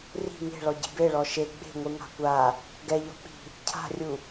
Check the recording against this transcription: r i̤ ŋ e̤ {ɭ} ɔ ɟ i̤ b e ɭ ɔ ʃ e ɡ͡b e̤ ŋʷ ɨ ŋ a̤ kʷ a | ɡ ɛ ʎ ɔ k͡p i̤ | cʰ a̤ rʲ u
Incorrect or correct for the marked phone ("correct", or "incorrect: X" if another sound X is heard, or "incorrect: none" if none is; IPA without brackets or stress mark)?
correct